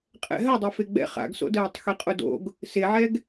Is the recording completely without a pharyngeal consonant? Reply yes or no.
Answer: no